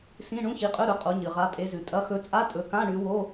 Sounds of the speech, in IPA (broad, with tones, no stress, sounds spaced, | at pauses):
s ĩ˧˥˧ ɳ ũ˧˥˧ ç i˨˦ qʼ ɵ˧˥˧ ɾ ɵ˨˦ qʼ o˨˦ ɲ ɨ˩ ʁ a˨˦ pʼ e˨˦ z ʉ˩ tʼ ɐ˨˦ x ɵ˨˦ t͡sʼ a˧˥˧ tʼ ɵ˨˦ k ã˧˥˧ ɳ ʉ˨˦ w o˧˥˧